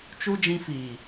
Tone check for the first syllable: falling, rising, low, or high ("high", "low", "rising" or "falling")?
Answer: high